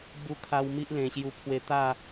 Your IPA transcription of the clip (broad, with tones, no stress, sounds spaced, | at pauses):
b u˧ kʰ a˧ w m i˦ ʔ l ẽ˨˩ ɕ j u˧ pʰ w e˧ t̪ a˥˧